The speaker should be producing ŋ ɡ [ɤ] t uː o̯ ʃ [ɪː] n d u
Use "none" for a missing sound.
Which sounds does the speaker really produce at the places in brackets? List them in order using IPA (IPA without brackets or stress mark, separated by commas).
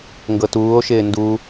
ɤ, ɪː